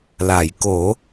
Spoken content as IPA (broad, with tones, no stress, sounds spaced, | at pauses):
l a˨˩˨ j k o˨˩˦